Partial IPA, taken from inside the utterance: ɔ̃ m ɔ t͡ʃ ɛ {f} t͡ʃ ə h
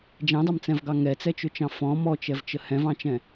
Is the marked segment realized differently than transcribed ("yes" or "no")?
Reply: yes